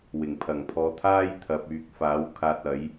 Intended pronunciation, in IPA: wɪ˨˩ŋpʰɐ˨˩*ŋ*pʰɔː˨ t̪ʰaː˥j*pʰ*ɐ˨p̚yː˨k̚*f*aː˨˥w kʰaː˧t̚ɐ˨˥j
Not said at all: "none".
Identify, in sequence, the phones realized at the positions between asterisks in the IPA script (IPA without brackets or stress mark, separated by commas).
ŋ, t̪ʰ, f